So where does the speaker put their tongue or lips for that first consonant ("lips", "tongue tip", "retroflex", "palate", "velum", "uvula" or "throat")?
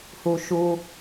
throat